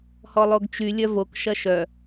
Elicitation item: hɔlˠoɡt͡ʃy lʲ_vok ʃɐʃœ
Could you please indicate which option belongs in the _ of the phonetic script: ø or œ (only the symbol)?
œ